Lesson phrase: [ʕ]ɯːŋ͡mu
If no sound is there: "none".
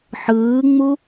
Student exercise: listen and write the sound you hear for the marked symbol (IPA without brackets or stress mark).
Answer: ħ